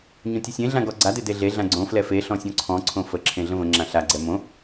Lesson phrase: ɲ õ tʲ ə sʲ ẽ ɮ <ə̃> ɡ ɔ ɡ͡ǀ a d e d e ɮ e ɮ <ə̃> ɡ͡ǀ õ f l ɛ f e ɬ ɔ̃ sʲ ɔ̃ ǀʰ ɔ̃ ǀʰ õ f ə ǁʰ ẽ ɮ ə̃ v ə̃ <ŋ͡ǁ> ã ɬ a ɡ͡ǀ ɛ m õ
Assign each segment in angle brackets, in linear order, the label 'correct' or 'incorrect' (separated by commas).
incorrect, incorrect, correct